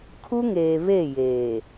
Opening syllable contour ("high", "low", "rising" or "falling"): high